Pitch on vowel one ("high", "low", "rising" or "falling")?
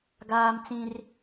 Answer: high